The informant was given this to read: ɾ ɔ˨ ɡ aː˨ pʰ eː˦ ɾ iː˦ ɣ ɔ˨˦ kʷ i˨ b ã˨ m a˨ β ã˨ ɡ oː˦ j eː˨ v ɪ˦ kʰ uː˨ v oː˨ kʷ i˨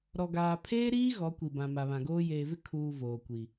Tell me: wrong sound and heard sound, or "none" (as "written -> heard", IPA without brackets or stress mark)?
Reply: none